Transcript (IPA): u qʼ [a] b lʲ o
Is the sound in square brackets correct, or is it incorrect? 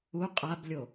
correct